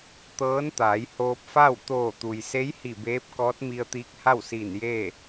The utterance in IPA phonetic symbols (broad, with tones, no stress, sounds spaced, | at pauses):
t̪ ɤː˧˥ n t̪ aː˩˧ j h oː˧ p̚ f a˥˨ w t̪ oː˧˩ t̪ u˩ j s e˧˥ j h i˧˩ b eː˧˥ p̚ k ɔː˧˥ t̚ m i˧ ə̯ t̪ iː˧˥ k̚ h a˥˨ w s iː˧˩ n j eː˥˨